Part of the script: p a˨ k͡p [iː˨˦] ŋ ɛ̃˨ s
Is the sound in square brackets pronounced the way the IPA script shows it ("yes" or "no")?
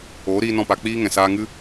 no